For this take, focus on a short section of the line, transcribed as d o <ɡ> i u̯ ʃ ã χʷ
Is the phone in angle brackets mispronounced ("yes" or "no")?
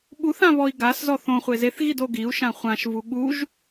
no